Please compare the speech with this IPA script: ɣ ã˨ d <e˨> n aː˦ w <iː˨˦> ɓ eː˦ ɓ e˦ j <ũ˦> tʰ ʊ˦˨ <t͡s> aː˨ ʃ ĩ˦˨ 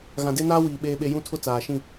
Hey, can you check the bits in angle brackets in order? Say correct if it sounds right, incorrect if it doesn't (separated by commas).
incorrect, incorrect, correct, correct